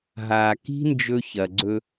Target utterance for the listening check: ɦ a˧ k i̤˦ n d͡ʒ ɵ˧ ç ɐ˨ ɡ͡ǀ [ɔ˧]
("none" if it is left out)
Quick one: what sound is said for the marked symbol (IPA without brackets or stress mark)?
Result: ɵ˧